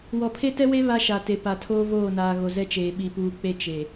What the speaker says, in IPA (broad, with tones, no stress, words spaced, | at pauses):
wɔ˨pʰe˦tɛ˦we˦ βa˦ʃa˨te˨ pa˨tʰoː˦ voː˦˨naː˨ ɣo˨zɛ˦t͡ʃeː˨ ɓi˨puː˨k͡pe˦ t͡ʃe˨